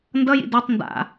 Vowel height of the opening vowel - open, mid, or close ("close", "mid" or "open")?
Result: mid